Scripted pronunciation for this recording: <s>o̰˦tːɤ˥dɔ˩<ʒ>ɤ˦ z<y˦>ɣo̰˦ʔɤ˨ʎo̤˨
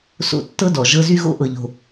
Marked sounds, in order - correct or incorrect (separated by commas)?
correct, correct, correct